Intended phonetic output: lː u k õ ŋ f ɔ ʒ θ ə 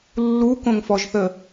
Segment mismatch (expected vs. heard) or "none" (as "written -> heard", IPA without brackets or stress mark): none